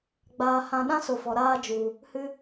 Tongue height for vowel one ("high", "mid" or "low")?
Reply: low